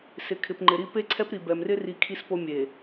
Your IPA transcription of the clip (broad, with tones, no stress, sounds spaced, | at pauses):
s ɪ˨ kʰ ɪ˨ p ŋ͡ǃ ɪ˨ ɾ i˦ p e˦ ǀʰ ɛ˦ p ɾ i˨ b ɛ˨ m r ɪ˦ r i˨ kʰ i˦ s p o˦ mʲ e˨